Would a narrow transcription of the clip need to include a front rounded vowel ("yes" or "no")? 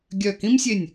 yes